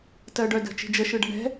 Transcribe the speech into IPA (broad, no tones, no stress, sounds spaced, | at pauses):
t ɜ ɖ œ d ə̤ t͡ʃ i̤ d͡ʒ ə ʃ ɯ ɖ ə̤ ɳ ɛ̤